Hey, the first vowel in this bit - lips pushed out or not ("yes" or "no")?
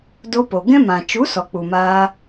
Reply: yes